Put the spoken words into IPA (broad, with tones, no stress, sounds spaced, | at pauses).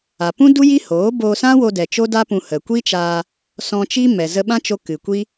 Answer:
a˨ p ũ˦ d u˦ j i˦ h oː˨˦ b oː˧ s ã˦ w o˧ d ɛ˨ t͡ʃ o˦ d a˦ p ũ˧ h ə˨ kʷ i˦ t͡ʃ aː˧ | s ɔ̃˧ t͡ʃ i˦ m ɛ˨ z ə˧ ɓ ã˦ t͡ʃ o˧ k ɨ˨ kʷ i˦